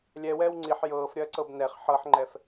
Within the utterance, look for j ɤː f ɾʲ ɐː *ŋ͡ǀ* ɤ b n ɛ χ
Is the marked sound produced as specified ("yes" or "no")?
no